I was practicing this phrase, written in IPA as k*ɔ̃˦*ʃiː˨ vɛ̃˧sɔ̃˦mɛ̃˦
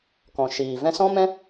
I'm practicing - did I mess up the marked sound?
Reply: yes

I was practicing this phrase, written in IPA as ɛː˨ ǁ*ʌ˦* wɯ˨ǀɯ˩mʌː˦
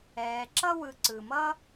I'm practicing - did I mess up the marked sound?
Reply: no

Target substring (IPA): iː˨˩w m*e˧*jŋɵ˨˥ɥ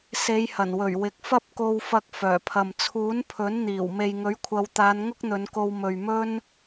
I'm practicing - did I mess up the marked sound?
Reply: yes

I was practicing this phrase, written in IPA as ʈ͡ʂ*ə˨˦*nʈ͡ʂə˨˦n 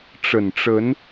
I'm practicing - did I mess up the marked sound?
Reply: yes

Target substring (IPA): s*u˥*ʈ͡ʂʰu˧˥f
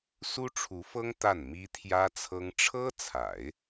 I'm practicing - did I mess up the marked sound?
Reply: no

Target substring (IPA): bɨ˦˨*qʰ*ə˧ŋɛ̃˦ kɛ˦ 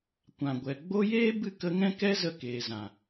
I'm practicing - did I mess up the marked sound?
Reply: yes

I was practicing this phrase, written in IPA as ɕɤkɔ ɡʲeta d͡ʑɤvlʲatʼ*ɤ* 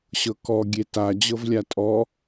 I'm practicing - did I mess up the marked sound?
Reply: yes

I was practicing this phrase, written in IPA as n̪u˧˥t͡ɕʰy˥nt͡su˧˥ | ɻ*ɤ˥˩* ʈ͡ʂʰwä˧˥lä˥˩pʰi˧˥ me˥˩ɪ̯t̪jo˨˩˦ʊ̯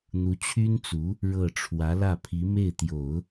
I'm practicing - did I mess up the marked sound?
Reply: no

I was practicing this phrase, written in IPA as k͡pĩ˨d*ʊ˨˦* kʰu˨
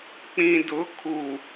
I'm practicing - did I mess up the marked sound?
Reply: no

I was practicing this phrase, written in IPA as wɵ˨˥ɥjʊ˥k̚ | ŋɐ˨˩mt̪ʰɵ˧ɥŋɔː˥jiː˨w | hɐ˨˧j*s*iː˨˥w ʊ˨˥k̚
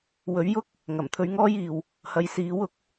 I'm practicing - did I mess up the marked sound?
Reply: no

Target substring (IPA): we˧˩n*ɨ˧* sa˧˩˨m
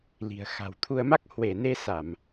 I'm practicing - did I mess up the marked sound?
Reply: yes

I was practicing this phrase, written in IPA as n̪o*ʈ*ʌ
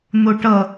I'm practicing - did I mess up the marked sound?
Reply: no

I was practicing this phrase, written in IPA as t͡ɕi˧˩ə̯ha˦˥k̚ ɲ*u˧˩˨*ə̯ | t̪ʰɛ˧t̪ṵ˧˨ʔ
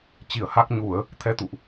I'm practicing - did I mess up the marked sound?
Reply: no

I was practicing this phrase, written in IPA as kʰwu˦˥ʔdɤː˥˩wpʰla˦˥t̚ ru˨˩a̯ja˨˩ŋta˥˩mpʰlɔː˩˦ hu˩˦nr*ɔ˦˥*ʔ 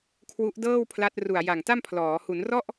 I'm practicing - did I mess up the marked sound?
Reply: yes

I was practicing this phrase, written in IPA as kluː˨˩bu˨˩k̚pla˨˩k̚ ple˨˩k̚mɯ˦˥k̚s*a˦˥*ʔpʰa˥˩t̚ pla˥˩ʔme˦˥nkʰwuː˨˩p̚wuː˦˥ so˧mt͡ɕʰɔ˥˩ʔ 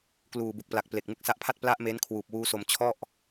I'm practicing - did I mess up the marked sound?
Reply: no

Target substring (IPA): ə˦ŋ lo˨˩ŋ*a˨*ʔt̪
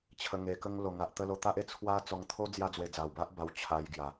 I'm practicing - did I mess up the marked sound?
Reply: no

